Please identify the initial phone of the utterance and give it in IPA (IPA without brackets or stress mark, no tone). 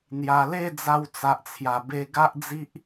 n̪